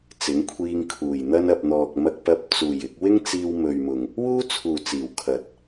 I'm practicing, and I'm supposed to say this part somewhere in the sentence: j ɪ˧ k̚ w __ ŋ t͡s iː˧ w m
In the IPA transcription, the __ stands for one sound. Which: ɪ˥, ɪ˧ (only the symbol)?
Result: ɪ˥